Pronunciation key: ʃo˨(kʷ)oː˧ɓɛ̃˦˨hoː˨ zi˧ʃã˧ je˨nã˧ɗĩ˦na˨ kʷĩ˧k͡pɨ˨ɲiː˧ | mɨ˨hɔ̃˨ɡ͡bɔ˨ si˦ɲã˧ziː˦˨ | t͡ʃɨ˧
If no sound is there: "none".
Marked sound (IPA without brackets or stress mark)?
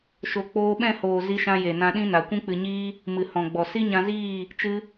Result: k͡p